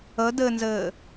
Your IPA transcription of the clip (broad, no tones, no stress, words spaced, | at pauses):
ə dɘnzɘː